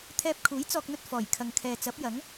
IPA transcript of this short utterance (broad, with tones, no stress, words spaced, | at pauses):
t̪ʰɛː˧p̚kʰuː˨˥j t͡sɔː˧k̚n̪ɵ˧t̚ fɔː˨˩j kʰɐ˨ŋkʰɛː˨ t͡sɐ˨˥p̚jɐ˨˥ŋ